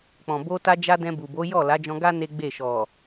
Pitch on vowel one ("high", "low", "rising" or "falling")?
low